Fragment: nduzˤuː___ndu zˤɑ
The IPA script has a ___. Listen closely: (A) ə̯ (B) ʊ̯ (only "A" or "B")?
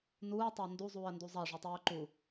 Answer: A